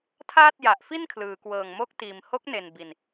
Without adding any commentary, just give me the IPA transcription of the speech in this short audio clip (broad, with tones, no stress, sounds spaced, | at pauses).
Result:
tʰ aː˥˩ t̚ j a˨˩ ʔ f i˥˩ n kʰ l ɯː˩˦ k w ɤː˨˩ ŋ m o˦˥ k̚ t iː˨˩ m h o˦˥ k̚ n e˨˩ n b i˨˩ n